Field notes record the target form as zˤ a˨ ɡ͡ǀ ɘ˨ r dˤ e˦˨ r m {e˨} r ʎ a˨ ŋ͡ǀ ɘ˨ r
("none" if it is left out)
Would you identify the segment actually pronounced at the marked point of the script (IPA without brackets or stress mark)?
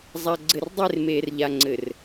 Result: eː˨